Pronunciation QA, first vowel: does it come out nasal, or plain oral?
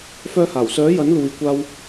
oral